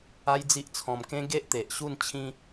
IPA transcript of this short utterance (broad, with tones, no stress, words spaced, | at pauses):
a˦jd͡zi˦ʔt͡sʰɔ̃˧m kẽ˦ ɡe˦ʔt̪e˨ʔ ɕu˥˧nt͡ɕʰĩ˦